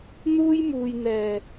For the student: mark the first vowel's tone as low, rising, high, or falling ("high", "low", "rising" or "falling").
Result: high